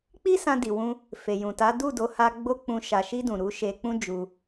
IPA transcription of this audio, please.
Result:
k͡p i˦ s ã˧ d i˨ w ũ˧ | f e˨ j ũ˨ t a˨˦ d u˦˨ d o˨˦ h a˧ ɡ͡b o˦ k͡p ũ˧ ʃ a˨ ʃ i˧ d ũ˨ ɾ u˨˦ ʃ e˧ k͡p ũ˦ d͡ʒ u˧

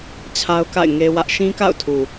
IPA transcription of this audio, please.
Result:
t͡ɕʰ a˦ ʊ̯ k a̰˦˨ ɪ̯ ŋ e˦ w ä˦ ʔ ʃ ĩ˦ k a̰˦˨ ʊ̯ tʰ u˨

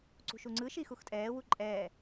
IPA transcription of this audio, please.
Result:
ǀ ṳ ʃ u ŋ͡ǀ ɯ ʃ i x u x tʼ ɛː w u ǃʼ ɛː

